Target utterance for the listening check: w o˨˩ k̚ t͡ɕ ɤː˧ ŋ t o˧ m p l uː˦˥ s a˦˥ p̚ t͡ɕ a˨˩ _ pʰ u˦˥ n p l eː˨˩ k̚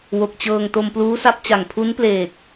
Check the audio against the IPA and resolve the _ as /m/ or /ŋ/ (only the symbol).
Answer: ŋ